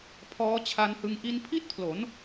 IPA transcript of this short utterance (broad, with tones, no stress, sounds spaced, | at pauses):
pʰ ɔː˦˥ t͡ɕʰ a˧ n h ɯ˧ ŋ ʔ i˧ n pʰ i˥˩ t̚ pʰ l o˩˦ n